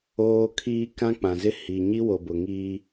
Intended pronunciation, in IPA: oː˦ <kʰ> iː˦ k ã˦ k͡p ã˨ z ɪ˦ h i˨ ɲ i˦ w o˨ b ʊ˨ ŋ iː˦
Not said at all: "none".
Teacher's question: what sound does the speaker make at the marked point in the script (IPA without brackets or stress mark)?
kʰ